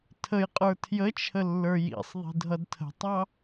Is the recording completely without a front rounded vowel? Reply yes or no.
yes